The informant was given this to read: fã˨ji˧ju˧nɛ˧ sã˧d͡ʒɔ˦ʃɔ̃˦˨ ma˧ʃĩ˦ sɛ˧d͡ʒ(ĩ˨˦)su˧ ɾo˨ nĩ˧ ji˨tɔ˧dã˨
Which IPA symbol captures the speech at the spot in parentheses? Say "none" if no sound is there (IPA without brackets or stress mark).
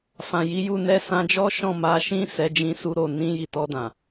ĩ˧